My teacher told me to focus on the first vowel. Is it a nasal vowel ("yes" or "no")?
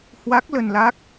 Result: no